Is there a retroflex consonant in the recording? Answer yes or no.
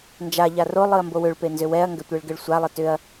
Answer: yes